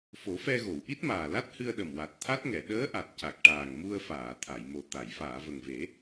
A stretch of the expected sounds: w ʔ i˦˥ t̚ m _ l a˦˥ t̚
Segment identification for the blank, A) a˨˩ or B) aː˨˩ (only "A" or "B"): B